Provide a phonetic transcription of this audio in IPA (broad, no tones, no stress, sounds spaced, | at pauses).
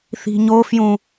θ i̤ ɲ o f j ũ